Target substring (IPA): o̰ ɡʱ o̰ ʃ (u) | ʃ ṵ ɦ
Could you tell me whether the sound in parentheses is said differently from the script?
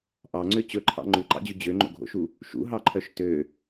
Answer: no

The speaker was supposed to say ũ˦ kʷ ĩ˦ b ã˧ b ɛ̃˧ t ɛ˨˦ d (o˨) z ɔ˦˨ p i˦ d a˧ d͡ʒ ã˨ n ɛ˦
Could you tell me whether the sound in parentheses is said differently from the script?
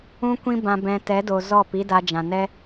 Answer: no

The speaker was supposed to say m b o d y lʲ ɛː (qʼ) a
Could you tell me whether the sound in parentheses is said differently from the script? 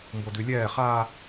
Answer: yes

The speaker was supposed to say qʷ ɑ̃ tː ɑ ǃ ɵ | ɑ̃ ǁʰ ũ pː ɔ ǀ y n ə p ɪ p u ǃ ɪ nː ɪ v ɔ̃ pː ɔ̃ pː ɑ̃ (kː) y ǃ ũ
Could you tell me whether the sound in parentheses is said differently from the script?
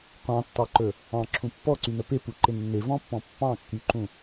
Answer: no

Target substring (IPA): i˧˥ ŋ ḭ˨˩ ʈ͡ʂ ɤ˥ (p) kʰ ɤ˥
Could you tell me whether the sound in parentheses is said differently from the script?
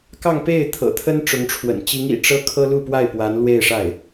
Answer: yes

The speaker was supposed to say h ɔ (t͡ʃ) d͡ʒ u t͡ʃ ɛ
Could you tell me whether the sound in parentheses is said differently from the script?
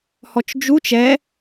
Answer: no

